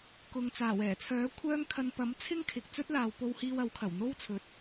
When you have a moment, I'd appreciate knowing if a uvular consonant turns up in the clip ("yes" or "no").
no